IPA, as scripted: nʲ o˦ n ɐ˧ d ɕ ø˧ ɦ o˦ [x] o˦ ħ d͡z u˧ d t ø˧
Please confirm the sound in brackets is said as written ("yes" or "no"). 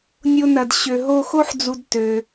yes